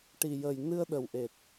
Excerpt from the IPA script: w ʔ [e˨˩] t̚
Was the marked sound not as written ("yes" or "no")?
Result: no